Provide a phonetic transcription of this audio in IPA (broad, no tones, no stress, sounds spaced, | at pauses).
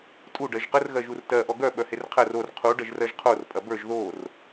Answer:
tʼ u ɖ ɜ ʒ q ə r ɣ ɜ ʒ u r t ɜ ʔ ɔ ɡ œ ɓ œ h e r qʰ ɜ r o r qʰ u ɖ ɜ ʒ r ɜ ʒ qʰ o r pʼ ɐ b ə˞ ʒ ð o r